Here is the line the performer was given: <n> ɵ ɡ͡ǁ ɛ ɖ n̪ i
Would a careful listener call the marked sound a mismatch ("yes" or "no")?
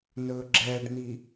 no